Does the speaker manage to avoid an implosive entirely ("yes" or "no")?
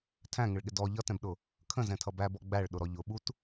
no